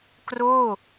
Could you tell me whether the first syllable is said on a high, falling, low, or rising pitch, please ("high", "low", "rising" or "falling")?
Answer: falling